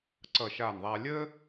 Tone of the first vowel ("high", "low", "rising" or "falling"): falling